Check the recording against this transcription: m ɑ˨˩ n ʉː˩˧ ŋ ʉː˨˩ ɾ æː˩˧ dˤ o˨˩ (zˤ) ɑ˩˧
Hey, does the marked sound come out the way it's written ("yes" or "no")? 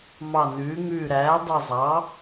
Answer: yes